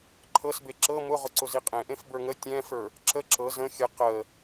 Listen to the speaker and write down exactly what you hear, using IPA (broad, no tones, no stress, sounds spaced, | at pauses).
ǃʰ ɤ s b e ǁ ɤ m ʊ ʁ ʊ ǀ ʊ z i qʼ ẽ ʔ ẽ f b ə˞ ŋ ə tʲ ɛ̃ f ə˞ | ǁ ə ǁ ɤ z ə̃ xʲ ə q ə